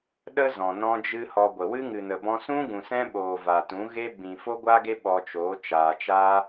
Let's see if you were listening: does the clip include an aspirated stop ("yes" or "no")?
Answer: no